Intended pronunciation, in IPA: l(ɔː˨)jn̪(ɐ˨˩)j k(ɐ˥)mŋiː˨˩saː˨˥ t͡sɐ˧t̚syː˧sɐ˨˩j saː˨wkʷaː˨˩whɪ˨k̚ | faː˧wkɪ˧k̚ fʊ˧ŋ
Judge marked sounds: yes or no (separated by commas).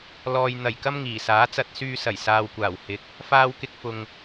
yes, yes, yes